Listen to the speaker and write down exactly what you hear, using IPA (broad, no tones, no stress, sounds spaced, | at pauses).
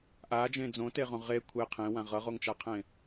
ʔ a d͡ʒ ẽ d͡z õ t e ʁ õ ʁ e kʷʰ e qʰ ẽ w ã ʁ ʌ ʁ o ŋ t͡ʃ a qʰ ẽ